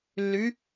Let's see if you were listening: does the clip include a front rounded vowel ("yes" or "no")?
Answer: yes